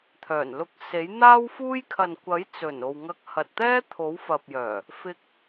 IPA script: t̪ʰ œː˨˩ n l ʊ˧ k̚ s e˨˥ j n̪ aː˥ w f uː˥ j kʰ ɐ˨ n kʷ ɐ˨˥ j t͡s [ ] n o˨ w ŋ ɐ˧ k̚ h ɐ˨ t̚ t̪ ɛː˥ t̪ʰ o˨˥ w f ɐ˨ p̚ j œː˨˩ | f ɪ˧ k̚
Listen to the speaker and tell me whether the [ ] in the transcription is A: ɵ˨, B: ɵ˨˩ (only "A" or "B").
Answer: B